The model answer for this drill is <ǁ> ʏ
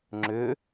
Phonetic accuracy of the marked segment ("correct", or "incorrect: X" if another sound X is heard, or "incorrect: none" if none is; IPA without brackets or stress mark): incorrect: ŋ͡ǁ